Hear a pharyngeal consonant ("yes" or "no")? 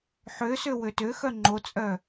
yes